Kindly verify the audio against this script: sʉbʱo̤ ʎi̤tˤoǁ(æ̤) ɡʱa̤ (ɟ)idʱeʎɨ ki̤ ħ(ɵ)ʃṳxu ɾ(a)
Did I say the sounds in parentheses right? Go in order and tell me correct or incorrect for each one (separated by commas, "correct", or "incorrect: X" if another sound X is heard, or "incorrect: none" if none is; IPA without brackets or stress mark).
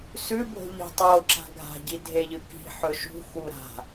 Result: incorrect: a̤, correct, correct, incorrect: a̤